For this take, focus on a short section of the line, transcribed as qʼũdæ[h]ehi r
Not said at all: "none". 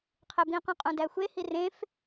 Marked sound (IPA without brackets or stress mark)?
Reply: xʷ